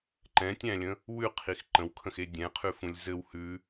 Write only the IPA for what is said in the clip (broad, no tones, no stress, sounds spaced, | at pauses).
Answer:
ǃ ɛ̃ tʲ æ̃ lʲ ə̃ | w ʉ qʰ i x ǃ ə̃ w kʰ ə̃ x e dʲ ɛ̃ qʰ ʉ f ũ lʲ z ɘ w h ʉ